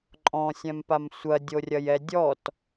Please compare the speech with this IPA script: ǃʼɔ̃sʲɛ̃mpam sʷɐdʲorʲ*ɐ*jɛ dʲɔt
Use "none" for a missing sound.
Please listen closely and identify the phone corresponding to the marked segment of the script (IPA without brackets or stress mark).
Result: ɐ